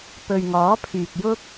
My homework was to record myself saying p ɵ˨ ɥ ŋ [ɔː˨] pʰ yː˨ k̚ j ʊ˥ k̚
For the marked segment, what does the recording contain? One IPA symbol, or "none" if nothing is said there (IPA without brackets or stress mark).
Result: ɔː˨˥